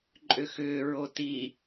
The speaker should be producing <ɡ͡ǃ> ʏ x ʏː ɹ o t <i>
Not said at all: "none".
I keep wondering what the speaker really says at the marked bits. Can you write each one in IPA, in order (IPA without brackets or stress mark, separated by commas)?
ǃʼ, i